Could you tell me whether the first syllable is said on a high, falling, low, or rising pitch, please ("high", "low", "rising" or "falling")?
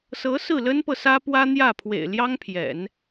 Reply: rising